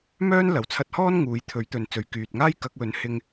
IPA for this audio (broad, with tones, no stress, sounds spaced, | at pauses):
m œː˥ n l ɐ˨˩ w t͡sʰ ɐ˧ t̚ h ɔː˥ n ŋ uː˨˥ j t̪ʰ ɵ˨˥ ɥ t̪ ɵ˨ n t͡s ɵ˨ ɥ k yː˨ t̚ ŋ aː˥ j k ɐ˨˥ k̚ w ɵ˨˥ n h ɪ˧ ŋ